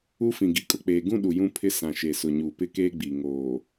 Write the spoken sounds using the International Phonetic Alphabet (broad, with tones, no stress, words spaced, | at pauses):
u˦fĩ˨ ɡi˨kʼʊ˨k͡peː˨ɡũ˦ ɗu˨jũ˦pʰɪ˦ sã˨ʃe˨sʊ˨ ɲuː˨pɪ˦keː˦ ɡ͡bi˨ ŋoː˨